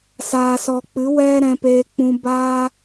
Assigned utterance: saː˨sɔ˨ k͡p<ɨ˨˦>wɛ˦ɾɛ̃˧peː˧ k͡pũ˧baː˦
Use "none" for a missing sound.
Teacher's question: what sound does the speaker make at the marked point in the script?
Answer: ɨ˨˦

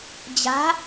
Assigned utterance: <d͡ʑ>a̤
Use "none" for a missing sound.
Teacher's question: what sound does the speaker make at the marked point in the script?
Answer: d͡ʑ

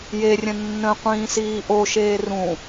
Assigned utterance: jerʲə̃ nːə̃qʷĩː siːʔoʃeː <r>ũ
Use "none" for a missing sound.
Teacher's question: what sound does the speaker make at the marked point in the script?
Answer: r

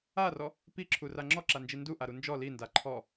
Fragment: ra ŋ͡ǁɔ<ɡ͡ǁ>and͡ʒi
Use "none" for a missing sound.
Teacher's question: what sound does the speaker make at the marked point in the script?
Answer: ǁ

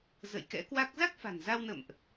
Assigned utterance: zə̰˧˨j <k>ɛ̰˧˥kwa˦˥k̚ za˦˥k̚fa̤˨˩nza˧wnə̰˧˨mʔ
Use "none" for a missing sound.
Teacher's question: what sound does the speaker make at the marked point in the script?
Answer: k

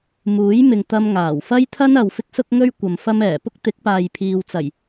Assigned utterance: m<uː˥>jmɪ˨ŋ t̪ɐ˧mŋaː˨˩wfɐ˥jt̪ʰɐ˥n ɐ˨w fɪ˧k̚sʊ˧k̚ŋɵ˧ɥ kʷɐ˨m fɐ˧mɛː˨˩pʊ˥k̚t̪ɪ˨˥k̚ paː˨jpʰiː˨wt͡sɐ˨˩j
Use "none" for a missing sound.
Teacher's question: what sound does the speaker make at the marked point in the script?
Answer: uː˨˥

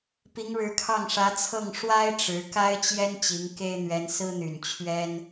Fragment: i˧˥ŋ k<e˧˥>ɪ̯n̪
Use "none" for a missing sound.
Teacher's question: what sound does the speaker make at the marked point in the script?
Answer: e˥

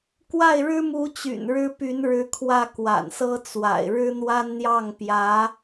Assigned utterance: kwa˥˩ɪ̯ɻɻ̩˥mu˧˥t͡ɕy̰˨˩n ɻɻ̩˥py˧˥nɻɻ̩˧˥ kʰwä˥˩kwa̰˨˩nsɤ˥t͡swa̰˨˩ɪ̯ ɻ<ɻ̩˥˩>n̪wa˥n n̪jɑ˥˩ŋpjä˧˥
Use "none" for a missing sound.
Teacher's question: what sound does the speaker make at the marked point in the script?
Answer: ɻ̩˥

